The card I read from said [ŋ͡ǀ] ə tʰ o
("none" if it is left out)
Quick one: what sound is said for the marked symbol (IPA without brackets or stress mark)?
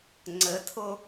ŋ͡ǀ